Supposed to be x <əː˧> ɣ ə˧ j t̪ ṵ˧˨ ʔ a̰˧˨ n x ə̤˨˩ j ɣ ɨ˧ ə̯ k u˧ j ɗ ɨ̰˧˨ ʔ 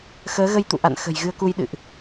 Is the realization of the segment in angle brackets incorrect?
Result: yes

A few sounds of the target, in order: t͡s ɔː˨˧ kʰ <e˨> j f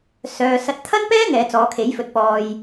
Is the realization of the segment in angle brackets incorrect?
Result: yes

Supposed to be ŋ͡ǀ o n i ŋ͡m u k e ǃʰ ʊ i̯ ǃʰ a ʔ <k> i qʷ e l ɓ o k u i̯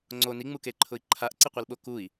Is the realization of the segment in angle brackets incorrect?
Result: yes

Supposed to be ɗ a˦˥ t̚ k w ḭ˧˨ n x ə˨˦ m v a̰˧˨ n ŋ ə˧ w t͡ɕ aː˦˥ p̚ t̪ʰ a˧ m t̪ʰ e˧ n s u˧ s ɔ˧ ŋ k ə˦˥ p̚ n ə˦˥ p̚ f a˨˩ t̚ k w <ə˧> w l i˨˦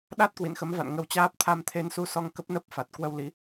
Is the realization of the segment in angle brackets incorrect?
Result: no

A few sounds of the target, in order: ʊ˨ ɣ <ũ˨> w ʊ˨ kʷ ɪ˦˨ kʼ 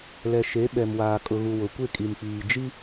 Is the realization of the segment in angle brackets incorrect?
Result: yes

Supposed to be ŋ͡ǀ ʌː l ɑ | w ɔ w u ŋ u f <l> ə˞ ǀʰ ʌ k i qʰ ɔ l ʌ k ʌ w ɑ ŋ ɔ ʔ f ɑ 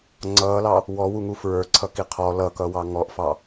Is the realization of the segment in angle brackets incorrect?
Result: yes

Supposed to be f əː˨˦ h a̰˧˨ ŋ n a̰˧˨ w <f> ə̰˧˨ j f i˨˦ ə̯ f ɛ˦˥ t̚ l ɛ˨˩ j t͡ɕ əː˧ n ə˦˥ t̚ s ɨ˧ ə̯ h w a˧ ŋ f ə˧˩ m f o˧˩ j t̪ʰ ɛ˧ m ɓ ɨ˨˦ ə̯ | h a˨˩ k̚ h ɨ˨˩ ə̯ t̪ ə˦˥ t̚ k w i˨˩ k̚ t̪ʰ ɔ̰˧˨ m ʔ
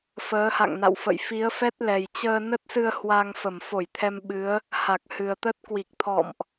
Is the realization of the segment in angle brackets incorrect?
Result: no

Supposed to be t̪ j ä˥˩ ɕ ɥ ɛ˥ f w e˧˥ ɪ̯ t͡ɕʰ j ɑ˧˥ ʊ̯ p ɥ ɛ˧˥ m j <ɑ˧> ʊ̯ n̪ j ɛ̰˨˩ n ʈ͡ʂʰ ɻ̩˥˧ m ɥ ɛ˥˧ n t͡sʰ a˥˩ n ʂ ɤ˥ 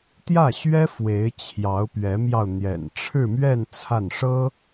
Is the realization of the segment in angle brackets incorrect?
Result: no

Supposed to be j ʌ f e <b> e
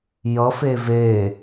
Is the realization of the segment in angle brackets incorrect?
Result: yes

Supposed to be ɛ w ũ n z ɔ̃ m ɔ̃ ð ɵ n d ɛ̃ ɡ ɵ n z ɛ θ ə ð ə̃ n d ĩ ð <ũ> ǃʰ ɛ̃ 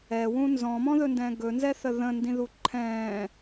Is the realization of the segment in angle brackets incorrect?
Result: yes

